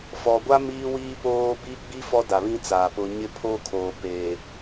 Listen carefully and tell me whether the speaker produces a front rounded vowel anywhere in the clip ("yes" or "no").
no